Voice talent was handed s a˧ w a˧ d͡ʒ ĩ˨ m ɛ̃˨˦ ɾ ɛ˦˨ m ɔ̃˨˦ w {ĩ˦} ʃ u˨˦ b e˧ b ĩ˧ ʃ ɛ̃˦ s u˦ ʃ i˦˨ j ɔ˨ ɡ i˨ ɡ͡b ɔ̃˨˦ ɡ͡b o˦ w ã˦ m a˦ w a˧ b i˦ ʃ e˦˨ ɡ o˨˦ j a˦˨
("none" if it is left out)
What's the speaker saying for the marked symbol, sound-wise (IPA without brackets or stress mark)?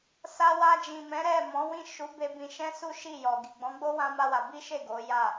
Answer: ĩ˦˨